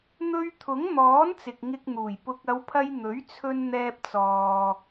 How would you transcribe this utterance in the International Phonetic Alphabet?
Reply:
n̪ɵ˧ɥt̪ʰʊ˨˥ŋn̪ɔː˨˥n t͡sɪ˨k̚ŋɪ˧k̚n̪uː˨˩j pʊ˨k̚ ɐ˨˧wpʰɐ˧j n̪ɵ˨˥ɥt͡sʰɵ˧n n̪ɛː˧p̚t͡sɔː˨

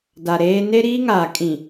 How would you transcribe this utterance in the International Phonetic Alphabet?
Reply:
da˨ɾeː˦ ne˦ɾiː˦ŋaː˨ kʼĩ˨

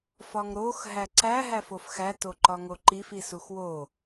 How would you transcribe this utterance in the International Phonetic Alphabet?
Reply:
fɒŋɾox ɦæǀæ ɦæfofxæ toǃɒŋoǃif isuxwo

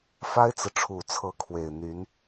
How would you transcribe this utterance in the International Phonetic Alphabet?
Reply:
fa˥ɪ̯t͡sɹ̩˨ʈ͡ʂʰu˨˩t͡sʰɤ˧˥ kʰwe˨˩ɪ̯n̪y˧˥n

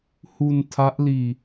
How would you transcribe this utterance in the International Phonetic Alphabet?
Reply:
hu˧n tʰa˦˥ʔliː˧

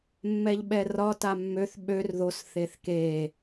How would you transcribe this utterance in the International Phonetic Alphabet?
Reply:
mːɛʎɓɛrɒ tamːøθ ɓør ðos θeθke

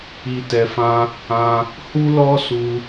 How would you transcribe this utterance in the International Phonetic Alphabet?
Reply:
i˨tɛ˨fã˧ | ã˧ | hu˦lɔ˦su˧

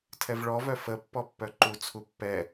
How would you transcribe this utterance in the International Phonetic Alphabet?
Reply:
tʰɛvɭɔvœ fəpːɔ pːœǃut͡sʰu pːɛ

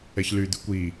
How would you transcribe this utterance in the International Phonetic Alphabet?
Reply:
ɛçlyd̪ʉkʷ i

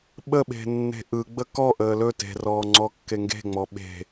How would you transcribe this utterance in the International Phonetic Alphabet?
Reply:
ɓəɓe̤nːe̤ ʔɯɡ͡bə kɔ ʔəːlɵ te̤rɔːŋ͡ǀɔ kːeŋɡe̤ŋ͡mɔ ɓe̤

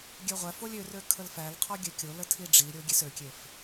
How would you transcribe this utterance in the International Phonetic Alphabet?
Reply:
ɡʲøʁʷæfolʲ ørø kʰəlfælqʰɔ ɡʲøkʲolə tʰiɖ͡ʐiɾʲo ɡʲesøkʲef

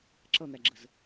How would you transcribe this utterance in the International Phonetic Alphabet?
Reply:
ǁʌn̪æɡ͡ǁəz

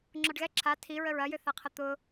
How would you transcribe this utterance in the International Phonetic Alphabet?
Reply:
ŋ͡ǁɔɖɣɛ ǁʰa tʰiɹəɹ ɐjʏθaqʰɐ t̪ʊ

